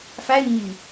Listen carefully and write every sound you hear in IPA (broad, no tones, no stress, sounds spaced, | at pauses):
f æ ɪ̯ ɲ i